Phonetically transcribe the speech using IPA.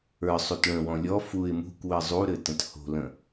ə˞sˤut ɭə̃wɔ̃ lʲɔ fuɪ̯ mṳkʷwɘ zˤuɾɘtə̃t ho̤lə̃

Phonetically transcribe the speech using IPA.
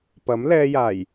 pɐ˨˥mlɛː˧jaː˨˩j

